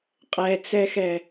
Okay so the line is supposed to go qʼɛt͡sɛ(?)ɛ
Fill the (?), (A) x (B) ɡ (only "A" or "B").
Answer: A